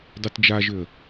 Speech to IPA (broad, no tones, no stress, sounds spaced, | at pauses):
dˤ y t d͡ʒ a ʒ ʏ ə̯